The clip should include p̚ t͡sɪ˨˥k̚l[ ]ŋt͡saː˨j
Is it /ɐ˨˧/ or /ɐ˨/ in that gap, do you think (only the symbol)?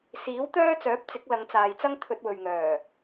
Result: ɐ˨˧